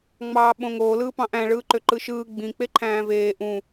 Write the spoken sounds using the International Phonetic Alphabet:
ŋ͡m ɑː ɓ õ ŋ oː l ɯː p ɑ̃ ʔ æ̃ ɭ ɯː ǃ ø ǃ ɯ ʃ ɯː ɡ͡b ĩ k͡p e ǃʰ æ̃ː v eː ʔ ũ

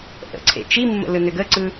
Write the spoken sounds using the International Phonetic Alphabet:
ʔ ə̰ ǀʰ ḛ t͡ʃ i mː ə̰ l ɯ n ø ɡ ə ǀ ɯ

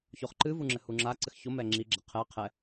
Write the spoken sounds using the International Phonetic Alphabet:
ç o χ ǃ ɨ v u ŋ͡ǁ ɘ h u ŋ͡ǁ a ǀ ɘ x ç o m ɛ ŋ͡ǁ i ɡ͡ǁ ɛ qʰ ɛ qʰ ɛ

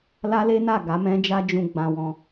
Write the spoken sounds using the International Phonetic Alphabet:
l a˦ l e˦ n a˦˨ ɡ a˨˦ m ɛ̃˦ d͡ʒ a˦ d͡ʒ ũ˧ ɡ͡b ã˧ w ɔ̃˧

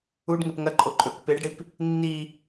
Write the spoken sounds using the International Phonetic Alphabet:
u ɖ ŋ e p ŋ ɐ ǃʼ o ǃʼ ɵ k p e ɖ ɽ i p | nː i

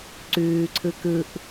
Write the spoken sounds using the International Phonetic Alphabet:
ǀ ʉː ǀʰ ɯ k ɯ ʔ

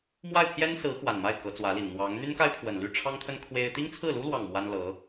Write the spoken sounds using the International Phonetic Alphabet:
m w a˥˩ ɪ̯ pʰ j ɛ˥ n s ɹ̩˧˥ x w a˨˩ n m a˥˩ ɪ̯ k ɤ˧˥ t͡s w ä˧˥ l i˨˩ n n̪ w ɑ˧˥ ŋ n̪ y˥ n k a˥ ɪ̯ pʰ w ə˨˩ n l y˥˩ ʈ͡ʂʰ ɑ˥ ŋ t̪ʰ ə˥ n kʰ w e˥ ɪ̯ t̪ i˥ ŋ t͡sʰ ɹ̩˥˩ l u˥ l w ɑ˥˩ ŋ m w a˥ n l ɤ˧˥

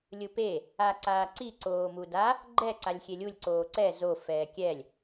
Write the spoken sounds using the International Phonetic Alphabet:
lʲ ɯ p e | a ǀ aː ǀ i ǀ oː m u d a | ɡ͡ǃ ɛ ǀ a lʲ xʲ e lʲ u lʲ ǀ oː ǀ ɛ z o f ɛː kʲ ɛ lʲ

